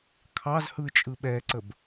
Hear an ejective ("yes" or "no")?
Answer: yes